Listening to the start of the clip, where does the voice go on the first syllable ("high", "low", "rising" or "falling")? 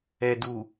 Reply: low